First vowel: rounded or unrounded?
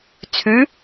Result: rounded